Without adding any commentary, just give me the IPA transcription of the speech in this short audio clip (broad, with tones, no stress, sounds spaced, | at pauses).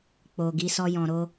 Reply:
k͡p o˨ ɡ i˨˦ s ɔ˧ j ɔ̃˨ ɾ o˧